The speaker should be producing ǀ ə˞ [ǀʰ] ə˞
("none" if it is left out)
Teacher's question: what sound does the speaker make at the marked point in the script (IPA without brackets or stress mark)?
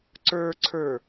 ǀʰ